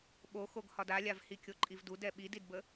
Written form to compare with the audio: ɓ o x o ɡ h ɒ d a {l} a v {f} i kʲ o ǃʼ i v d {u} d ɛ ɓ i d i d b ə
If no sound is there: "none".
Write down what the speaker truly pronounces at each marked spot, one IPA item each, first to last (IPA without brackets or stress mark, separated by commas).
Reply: lʲ, h, u